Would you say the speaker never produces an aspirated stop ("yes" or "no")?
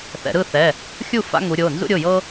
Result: yes